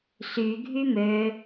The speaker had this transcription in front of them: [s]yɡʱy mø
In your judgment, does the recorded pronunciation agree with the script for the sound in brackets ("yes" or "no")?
yes